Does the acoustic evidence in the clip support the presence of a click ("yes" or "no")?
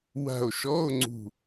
yes